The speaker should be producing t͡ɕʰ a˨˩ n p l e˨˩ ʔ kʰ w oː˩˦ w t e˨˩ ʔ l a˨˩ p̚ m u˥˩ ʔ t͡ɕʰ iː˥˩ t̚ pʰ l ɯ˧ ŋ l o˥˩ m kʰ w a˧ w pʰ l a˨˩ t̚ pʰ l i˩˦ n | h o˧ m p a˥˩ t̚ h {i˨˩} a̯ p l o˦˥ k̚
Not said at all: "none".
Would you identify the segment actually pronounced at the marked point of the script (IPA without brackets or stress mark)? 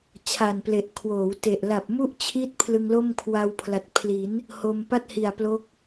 i˨˩